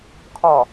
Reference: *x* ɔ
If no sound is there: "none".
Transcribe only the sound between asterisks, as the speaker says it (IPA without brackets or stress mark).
kʰ